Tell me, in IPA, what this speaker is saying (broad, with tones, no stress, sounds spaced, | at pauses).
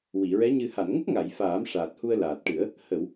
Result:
w i˨˩˨ ɹ ɛ˧˥ ɲ ɨ˨˩ h a˨˩˨ n ŋ ə˦˥ k̚ ŋ a˨˩˨ j f aː˨˩˦ m ʂ aː˨˩ t̚ h u˧ ə̯ l aː˨˩ t̚ ʈ ɨ˨˩˦ ə̯ | h ə˨˩˨ w